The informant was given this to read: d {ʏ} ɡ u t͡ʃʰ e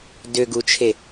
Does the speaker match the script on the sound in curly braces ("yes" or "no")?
yes